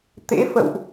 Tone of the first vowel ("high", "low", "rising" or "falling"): rising